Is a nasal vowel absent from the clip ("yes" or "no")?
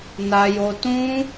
no